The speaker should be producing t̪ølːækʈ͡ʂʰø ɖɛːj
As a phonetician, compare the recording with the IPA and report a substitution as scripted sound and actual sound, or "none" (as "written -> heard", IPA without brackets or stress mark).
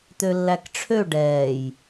none